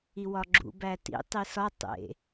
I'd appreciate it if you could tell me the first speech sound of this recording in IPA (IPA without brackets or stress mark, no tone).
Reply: i